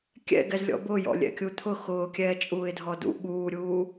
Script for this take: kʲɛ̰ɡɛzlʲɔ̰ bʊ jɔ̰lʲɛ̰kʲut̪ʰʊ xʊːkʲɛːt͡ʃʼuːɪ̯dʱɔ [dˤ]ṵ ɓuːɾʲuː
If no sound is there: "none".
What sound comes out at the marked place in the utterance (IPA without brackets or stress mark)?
d